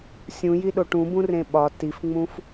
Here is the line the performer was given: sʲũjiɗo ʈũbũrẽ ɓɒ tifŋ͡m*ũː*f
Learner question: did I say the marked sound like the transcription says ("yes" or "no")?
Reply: no